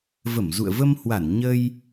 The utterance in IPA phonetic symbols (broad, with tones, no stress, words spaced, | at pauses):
və˧˩mzṵ˧˨ə̯və˧mhwa˧˩n ɲə˧j